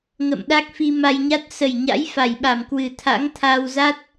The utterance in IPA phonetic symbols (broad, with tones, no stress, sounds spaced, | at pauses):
ŋ ə̰˧˨ m ɗ a˦˥ k̚ f i˧ m a˧ j ɲ a˦˥ t̚ s ə˨˩ j ɲ a̰˧˥ j f a˨˩ j ɓ a˨˩ m k w ɨ˨˩ t̪ʰ a̰˧˥ ŋ t̪ʰ a˧ w z a˦˥ t̚